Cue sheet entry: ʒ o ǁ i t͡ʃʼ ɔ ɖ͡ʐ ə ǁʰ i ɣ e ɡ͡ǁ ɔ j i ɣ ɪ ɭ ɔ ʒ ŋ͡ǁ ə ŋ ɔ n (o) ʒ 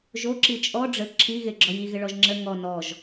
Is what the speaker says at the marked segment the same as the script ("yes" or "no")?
no